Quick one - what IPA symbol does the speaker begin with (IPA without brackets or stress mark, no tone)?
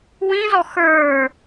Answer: w